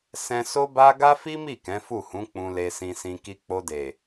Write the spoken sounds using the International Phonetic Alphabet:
s ɛ̃˦ s o˦ b a˦ ɡ a˦ f i˦ m i˦˨ k ɛ̃˨˦ f u˦˨ h ũ˨˦ k͡p ũ˧ l e˧ s ĩ˧ s ĩ˧ k i˧ k͡p o˧ d e˨

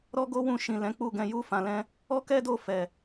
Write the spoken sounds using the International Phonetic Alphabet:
ɾ ɔ˦ ɡ o˦ w ũ˦˨ ʃ ĩ˨ l ɛ̃˨˦ k͡p u˦˨ ɡ ɛ̃˧ j u˧ f ã˨ l ɛ̃˧ | ɔ˦ k ɛ˦ d o˦˨ f ɛ˨

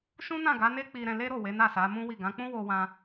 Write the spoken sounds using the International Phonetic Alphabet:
ʃ ũ˦ n ã˦˨ ɡ a˨˦ n e˦ k͡p i˧ ɾ ɛ̃˧ l e˦ ɾ o˦˨ w e˨˦ n a˦˨ s a˨˦ m ũ˦ w i˦˨ ɡ ã˨˦ k͡p ũ˦ w o˧ w ã˧

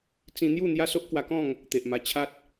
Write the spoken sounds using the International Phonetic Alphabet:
t͡s ĩ˧ n̪ j u˥˧ n̪ j a˦ s o˦ ʔ k w a˧ k ɔ̃˥˧ ŋ | t̪ e˨ ʔ m a˧ t͡ɕʰ a˦ t̚

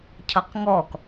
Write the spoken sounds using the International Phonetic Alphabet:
cʰ ʌ q ŋ ɔ k

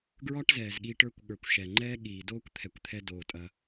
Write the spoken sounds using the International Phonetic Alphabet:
ɡ ɹ ɒ˦ ʈ z ɛː˨ z ɠ iː˧ ʈ ə˞˧ kʷ ɠ ə˞˨ kʷ ʃ ɛ˨ ŋ͡ǃ ɛː˦ ɠ iː˨ d oː˦ kʷ t̪ʰ ɛ˨ kʷ t̪ʰ ɛ˧ d oː˨ tʼ ɐ˧

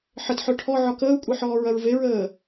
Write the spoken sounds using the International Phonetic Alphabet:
ħ ə t ħ œ ʈʰ ɔ ʕ ɔ k əː u̯ kʷʼ e ħ ɔː ɹ ɐ ɹ v e ɹ əː

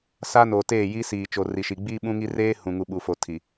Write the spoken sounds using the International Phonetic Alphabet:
s aː˦ n oː˨ t eː˦˨ j i˦ s iː˨ t͡ʃ o˨ r i˨ ʃ i˨ ɡ͡b iː˦ ɓ ũ˦ ŋ i˦ r eː˦ h ũ˨ ŋ u˨ ɓ u˨ f o˨ tʰ i˨

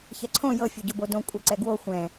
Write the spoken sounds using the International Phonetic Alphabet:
ç ɛ ǀʰ õ j ɤ fʲ o ɟ o b o d õ kʷʼ ɛ ǀ ɛ ɡ w o xʷ ɛ̃

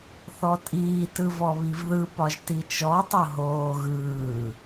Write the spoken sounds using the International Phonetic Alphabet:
θ ɔ tʼ iː t ɯ v ɔ β i v ð ɯ p ɒ ʒ t i t͡ʃ ɔ tˤ o ɦ oː ɣ ɯː

